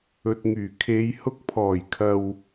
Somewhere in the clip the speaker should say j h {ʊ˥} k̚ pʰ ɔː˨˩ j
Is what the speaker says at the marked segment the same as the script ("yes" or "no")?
no